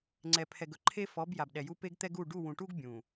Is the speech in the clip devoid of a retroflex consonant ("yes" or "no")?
no